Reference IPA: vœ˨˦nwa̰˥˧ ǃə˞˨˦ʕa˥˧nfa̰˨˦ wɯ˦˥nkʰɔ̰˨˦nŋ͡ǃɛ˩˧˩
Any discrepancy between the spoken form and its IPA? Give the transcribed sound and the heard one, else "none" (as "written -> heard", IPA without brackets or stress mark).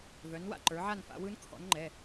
none